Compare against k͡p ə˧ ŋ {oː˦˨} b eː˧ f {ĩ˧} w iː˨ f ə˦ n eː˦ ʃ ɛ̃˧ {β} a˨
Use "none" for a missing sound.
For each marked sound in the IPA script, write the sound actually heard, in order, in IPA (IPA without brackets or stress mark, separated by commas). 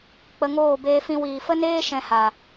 oː˦˨, ĩ˧, h